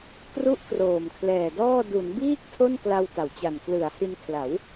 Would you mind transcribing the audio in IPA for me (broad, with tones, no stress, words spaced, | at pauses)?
kru˦˥ʔ kroː˨˩mkʰlɛː˨˩dɔː˥˩ du˩˦nbiː˥˩k̚ tʰo˥˩nkla˧w ta˩˦wt͡ɕa˨˩n klɯ˩˦a̯hi˧nkʰla˩˦w